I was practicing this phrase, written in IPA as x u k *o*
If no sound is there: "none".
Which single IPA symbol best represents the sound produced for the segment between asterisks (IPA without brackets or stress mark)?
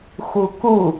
u